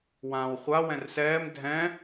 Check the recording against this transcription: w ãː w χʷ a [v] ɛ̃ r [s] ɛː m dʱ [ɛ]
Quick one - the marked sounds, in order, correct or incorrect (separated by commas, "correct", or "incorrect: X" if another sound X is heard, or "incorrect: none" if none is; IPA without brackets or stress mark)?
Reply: incorrect: w, correct, incorrect: ɛ̃